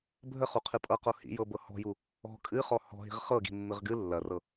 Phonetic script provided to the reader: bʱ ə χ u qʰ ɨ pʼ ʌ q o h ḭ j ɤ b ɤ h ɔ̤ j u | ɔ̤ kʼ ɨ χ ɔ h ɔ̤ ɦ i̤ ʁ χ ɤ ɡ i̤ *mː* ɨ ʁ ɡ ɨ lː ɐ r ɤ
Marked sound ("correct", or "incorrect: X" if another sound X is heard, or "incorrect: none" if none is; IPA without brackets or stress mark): correct